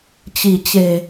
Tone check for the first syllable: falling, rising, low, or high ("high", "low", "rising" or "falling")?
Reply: low